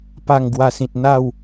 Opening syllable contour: falling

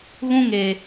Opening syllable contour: high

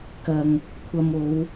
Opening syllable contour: low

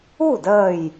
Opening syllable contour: falling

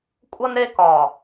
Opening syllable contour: high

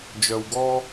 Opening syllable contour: low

